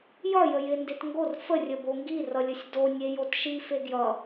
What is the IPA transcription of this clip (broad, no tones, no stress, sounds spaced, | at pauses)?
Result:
j ʌ j ə j ɪ n d e t ŋ ɡ o r f ə rʲ ə b o ŋ ɡ i r ʌ lʲ ə sʲ d o nʲ e j o t ʃ i f e ɡ j ʌ